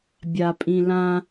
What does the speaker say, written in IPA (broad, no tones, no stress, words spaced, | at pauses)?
bʲapʼĩlã